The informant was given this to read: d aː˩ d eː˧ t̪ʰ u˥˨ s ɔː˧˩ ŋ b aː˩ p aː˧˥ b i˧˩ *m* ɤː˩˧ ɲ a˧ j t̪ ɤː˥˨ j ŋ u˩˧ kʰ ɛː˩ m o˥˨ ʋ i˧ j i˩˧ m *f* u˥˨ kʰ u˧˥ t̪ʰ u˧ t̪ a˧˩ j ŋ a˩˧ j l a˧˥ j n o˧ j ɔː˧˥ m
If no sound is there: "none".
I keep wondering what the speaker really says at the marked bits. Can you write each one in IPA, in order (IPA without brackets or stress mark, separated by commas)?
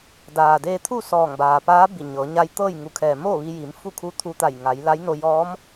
ɲ, f